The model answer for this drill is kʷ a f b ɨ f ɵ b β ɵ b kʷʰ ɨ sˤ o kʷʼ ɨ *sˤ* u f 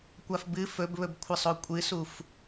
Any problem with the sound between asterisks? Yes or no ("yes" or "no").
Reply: yes